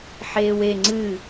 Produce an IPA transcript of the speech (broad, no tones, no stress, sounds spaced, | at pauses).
ħ eː w e ŋ͡ǀ ɨ